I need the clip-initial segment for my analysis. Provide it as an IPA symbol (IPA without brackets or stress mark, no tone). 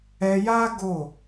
ɛ